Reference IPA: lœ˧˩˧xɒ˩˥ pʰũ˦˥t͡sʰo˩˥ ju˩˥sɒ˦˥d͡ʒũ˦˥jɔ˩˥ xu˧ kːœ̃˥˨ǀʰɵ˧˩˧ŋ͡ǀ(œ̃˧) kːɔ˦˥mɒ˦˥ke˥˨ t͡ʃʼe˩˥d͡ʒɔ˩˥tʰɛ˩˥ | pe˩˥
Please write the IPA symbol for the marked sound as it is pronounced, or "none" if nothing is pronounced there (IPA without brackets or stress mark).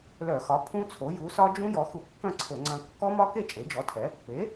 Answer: œ̃˧